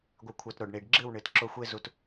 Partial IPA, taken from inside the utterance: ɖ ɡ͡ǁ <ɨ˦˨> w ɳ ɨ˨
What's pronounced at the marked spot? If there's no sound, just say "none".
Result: ɨ˦˨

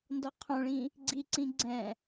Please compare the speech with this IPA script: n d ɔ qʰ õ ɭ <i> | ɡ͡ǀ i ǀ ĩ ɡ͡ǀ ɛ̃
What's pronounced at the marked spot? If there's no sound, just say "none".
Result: ĩ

